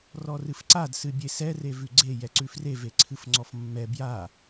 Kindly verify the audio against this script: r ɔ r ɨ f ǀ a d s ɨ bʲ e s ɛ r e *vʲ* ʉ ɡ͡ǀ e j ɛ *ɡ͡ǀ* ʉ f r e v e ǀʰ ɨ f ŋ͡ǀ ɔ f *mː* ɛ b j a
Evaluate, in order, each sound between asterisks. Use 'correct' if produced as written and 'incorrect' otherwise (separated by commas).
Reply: incorrect, incorrect, correct